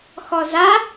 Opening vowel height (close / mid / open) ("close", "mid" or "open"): mid